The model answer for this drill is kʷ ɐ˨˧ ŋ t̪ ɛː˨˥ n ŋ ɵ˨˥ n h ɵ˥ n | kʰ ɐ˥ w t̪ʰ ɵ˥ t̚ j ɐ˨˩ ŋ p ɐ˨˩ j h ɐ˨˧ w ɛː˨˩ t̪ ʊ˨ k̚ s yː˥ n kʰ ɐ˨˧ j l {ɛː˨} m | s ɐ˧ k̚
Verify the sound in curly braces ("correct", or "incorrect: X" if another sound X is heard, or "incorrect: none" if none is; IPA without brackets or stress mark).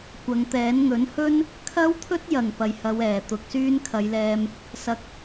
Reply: incorrect: ɛː˧